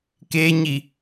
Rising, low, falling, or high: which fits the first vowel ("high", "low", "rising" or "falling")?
high